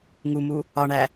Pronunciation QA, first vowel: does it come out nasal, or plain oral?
oral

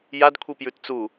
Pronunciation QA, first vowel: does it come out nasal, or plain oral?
oral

